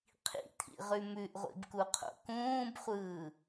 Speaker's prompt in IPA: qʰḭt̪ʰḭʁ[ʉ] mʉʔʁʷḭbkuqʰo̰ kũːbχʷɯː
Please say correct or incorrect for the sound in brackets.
correct